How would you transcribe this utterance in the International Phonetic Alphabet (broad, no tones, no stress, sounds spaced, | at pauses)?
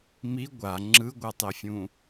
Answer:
m i ɡʷ a ŋ͡ǁ ɯ ɡʷ a tˤ e fʲ ũ